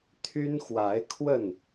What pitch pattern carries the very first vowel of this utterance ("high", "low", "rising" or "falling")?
high